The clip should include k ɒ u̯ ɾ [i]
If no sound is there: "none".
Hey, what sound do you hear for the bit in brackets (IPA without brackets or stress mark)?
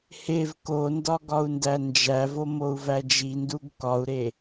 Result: e